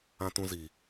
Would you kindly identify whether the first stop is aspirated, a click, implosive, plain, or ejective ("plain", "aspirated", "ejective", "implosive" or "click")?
plain